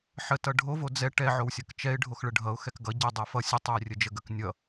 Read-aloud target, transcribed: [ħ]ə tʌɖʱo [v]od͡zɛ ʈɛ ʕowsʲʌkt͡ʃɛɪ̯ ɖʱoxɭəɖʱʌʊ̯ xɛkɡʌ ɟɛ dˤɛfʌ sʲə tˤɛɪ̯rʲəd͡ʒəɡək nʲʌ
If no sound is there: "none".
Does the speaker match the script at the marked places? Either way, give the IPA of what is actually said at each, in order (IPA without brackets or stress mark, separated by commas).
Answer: ħ, v